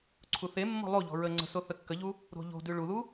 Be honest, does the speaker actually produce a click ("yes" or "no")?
yes